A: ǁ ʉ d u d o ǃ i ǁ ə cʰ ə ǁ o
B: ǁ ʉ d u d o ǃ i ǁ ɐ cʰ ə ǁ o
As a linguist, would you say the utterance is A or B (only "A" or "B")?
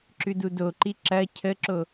B